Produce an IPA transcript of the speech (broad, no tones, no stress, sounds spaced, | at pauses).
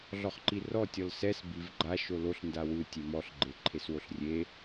ɮ ɔ χ ǃ i r ɔ tʲ ɔ l s ɛ s b i v ɡ͡ǃ a ʃ o l o ɬ n d a w ɯ tʲ e m ɔ ɬ ɡ͡ǃ e ǃʰ e s w o ɬ rʲ e